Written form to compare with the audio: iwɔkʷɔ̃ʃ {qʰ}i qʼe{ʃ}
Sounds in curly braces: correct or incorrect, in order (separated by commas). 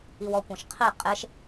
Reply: correct, correct